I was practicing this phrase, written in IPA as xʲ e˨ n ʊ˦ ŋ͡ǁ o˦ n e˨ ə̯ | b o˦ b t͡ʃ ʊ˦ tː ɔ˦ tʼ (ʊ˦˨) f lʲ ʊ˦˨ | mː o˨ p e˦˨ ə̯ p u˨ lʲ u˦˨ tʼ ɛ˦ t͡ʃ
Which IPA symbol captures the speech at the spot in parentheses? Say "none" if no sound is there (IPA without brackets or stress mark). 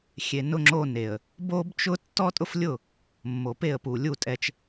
ʊ˦